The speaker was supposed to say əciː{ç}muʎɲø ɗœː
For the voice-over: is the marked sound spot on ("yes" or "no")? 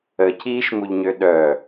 no